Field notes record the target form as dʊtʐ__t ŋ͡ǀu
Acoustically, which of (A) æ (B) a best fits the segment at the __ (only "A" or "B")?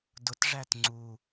A